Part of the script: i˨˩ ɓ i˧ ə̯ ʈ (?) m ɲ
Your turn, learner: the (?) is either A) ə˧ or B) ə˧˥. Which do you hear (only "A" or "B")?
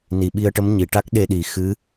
B